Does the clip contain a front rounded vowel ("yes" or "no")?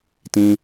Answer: no